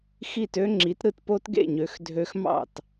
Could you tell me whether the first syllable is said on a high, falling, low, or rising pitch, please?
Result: falling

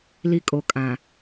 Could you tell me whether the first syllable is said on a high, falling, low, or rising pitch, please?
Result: high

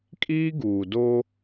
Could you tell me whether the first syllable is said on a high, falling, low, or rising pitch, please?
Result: high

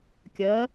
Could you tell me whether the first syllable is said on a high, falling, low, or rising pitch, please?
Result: rising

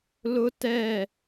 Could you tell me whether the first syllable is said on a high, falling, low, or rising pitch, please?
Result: high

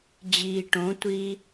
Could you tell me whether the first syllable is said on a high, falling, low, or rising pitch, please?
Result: low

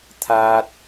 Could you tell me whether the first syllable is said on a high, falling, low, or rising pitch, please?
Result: high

